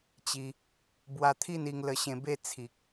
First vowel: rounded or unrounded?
unrounded